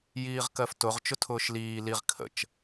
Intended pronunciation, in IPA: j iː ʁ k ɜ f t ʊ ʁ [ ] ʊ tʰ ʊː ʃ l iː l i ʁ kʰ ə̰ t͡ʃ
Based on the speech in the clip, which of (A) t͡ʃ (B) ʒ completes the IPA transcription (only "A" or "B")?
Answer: A